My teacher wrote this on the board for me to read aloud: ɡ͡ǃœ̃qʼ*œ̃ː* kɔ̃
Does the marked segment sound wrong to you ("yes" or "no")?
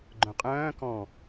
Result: no